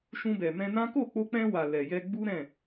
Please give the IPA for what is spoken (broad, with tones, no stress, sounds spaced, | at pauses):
ʃ ũ˧ b ɛ˨ m ɛ̃˧ n ã˦ k o˦˨ k͡p o˧ k͡p ɛ̃˧ w a˨ l ɛ˨ j ɛ˧ ɡ͡b u˦ ɾ ɛ̃˦˨